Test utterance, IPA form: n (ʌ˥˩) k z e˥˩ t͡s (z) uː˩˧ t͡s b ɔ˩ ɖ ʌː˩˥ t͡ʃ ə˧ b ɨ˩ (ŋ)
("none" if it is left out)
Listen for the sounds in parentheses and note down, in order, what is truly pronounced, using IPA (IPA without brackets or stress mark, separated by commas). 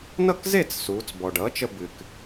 ʌ˥˩, s, k